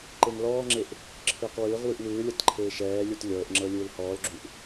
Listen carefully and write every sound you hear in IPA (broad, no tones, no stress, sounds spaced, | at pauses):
ǃ e ŋ l ɔː ŋ͡ǁ e ʔ | ǁʰ ɯː q w ɯː ʁ w ɯ ʔ w ɯː lʲ ɤ t ǃʰ eː ʃ ɛː lʲ u t lʲ ɤː ʔ ŋ͡ǁ ɤ lʲ ɯː l h ɔː l ɡ͡ǁ u ʔ